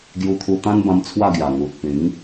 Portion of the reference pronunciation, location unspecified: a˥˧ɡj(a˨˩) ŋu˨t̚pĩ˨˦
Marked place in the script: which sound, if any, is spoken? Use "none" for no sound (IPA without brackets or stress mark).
a˨˩